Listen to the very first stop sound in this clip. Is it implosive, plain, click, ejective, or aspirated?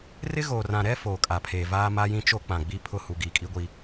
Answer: ejective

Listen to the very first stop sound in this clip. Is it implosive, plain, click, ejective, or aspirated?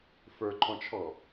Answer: click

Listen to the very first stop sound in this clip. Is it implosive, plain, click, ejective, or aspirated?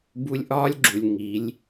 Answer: plain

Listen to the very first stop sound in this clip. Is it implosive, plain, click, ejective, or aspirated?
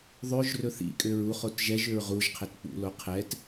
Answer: ejective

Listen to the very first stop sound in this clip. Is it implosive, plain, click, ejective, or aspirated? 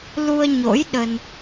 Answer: implosive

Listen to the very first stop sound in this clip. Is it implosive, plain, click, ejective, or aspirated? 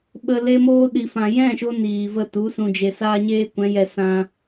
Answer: implosive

